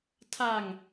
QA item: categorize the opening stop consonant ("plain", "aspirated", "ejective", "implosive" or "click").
aspirated